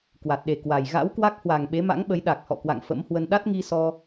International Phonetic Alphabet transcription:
kwa˨˩t̚ɗe˨˩kwa˨˩j ɣa̰˧˥wkwa˦˥k̚hwa˨˩ŋ ɓe˨˦ma̰˧˥ŋɓə˨˦j ɗa˨˩k̚ hɔ̰˧˨kwa̰˧˨ŋ fə̰˧˥mhwə˧n ɗa˦˥t̚ŋi˧ sɔ˧

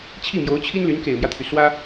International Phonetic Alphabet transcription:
t͡ɕʰi˥˩mjo˧˥ʊ̯t͡ɕʰi˥n ly˧˥nke˨˩ɪ̯mjä˦t̪ʰy˩ swä˥

